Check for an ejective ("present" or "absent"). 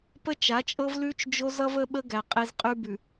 present